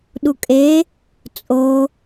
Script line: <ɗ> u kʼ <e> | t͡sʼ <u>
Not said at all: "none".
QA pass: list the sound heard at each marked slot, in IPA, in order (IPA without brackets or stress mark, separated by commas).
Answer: ɗ, e, o